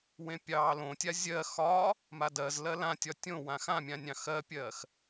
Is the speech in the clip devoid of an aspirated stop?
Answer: yes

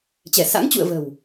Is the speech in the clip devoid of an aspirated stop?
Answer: yes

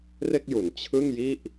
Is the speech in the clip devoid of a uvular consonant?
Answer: yes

